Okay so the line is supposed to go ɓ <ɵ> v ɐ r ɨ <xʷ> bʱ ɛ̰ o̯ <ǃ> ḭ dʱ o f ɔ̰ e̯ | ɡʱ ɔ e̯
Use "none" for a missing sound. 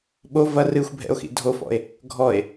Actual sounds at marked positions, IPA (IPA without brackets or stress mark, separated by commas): o, xʷ, x